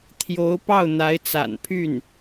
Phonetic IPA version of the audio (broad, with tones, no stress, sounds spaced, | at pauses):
t̪ʰ j o˧˥ ʊ̯ p ɑ˥˩ ʊ̯ n̪ a˧˥ ɪ̯ t͡s a̰˨˩ n pʰ y˥˩ n